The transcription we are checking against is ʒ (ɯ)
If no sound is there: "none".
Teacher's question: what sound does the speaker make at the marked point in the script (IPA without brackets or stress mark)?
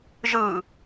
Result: ɯ